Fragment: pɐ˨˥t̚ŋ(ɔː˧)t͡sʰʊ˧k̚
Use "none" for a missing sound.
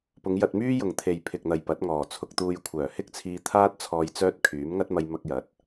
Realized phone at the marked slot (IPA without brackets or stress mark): ɔː˨˩